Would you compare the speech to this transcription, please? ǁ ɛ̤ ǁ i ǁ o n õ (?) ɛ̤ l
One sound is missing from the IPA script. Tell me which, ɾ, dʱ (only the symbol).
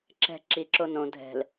dʱ